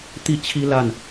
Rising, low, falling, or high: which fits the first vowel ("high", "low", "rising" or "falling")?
falling